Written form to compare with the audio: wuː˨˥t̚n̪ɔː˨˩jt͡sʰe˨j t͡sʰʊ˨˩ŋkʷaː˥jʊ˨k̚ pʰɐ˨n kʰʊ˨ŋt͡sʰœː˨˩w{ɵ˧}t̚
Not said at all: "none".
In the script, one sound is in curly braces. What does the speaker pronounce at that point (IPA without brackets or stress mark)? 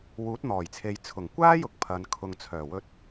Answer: ɵ˧